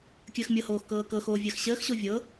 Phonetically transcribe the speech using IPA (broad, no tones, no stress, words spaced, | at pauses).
kʲəːxmʲɤhoːx kɤːkɤxoː vʲəːxɕəːxɕo vʲɤ